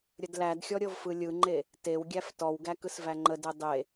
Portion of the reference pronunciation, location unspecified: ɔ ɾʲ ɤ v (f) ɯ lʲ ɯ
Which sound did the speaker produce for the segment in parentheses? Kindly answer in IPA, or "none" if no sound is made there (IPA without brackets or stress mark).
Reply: f